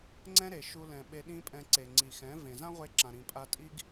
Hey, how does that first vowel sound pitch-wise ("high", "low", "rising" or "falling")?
high